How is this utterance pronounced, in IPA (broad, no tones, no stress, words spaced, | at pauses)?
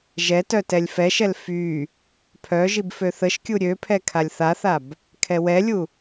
ʒɛtœ tɛlʲfɛʃɛl fy | pʰœ ʒibføθəʃkʲu ɾʲøpʰɛ kʰalʲθaθab | kʰɛwɛlʲu